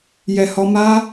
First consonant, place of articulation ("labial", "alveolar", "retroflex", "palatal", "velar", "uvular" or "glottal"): palatal